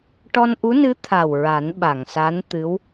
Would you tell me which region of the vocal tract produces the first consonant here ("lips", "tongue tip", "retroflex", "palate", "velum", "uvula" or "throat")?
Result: retroflex